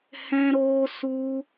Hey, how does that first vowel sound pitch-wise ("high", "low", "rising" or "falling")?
high